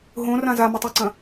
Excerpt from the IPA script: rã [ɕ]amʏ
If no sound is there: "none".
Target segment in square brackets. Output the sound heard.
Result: z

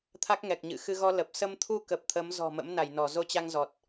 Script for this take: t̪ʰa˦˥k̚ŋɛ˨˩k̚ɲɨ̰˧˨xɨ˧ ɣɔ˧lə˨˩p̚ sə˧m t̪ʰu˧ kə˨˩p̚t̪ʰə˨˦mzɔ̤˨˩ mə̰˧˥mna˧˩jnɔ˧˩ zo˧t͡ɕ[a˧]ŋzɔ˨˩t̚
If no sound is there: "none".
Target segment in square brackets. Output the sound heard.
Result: a˧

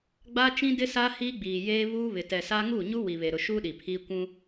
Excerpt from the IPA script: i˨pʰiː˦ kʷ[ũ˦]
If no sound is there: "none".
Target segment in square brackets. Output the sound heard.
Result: ũ˦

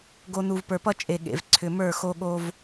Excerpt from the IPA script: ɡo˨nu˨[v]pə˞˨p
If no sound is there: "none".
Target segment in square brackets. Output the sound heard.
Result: v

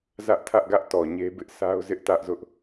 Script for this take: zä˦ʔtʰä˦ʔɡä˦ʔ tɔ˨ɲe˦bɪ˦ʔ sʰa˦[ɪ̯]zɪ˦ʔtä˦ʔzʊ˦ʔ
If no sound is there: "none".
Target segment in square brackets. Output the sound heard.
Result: ʊ̯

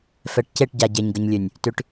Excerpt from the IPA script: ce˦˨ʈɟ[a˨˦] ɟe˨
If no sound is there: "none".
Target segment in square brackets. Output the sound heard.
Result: a˨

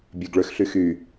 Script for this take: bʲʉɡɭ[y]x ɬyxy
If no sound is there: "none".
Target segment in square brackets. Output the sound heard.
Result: ø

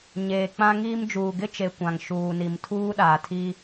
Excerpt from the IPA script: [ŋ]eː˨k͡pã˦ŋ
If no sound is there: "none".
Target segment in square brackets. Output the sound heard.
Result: ɲ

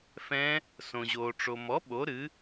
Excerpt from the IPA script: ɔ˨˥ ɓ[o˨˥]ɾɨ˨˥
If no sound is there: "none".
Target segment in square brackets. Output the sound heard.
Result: o˨˥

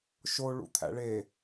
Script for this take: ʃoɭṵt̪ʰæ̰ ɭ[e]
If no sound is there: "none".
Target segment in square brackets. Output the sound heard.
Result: e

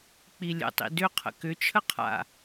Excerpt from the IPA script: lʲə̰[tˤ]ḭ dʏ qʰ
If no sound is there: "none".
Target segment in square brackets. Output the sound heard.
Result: tˤ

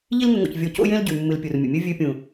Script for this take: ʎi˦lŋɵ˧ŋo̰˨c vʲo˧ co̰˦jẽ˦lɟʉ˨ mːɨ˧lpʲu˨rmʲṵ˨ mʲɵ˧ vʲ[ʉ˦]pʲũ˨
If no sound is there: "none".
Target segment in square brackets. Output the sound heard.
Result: ʉ˧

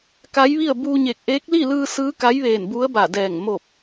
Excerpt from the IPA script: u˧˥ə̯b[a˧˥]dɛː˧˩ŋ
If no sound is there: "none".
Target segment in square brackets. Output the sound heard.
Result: a˧˩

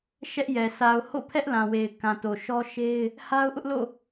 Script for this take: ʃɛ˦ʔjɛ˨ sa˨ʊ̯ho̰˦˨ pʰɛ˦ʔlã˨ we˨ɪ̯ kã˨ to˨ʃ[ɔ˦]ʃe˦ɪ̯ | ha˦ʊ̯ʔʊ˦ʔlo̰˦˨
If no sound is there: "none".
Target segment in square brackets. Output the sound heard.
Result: ɔ˦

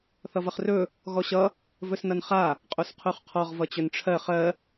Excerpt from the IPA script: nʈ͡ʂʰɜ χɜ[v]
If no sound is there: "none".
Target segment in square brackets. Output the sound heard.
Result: none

